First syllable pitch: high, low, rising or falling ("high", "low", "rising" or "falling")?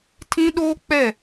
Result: high